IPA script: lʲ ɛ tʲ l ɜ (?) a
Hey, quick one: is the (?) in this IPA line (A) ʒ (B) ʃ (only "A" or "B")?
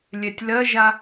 A